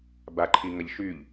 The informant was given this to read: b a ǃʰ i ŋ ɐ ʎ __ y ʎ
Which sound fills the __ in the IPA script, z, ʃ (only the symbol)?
ʃ